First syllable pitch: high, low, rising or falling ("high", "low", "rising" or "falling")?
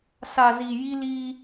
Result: low